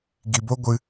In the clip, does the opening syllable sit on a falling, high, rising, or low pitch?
low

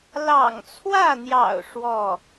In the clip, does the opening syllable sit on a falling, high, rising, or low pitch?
low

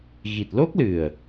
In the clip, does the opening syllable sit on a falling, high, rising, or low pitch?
low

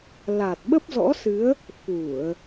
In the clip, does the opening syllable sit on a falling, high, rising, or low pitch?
low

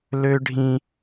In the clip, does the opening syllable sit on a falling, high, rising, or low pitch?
high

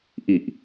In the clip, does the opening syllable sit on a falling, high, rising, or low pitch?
low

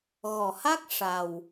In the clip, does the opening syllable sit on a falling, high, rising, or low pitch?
low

